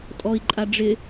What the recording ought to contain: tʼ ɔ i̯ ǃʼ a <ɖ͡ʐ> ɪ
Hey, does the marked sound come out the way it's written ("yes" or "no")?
yes